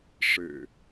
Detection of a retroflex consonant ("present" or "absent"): present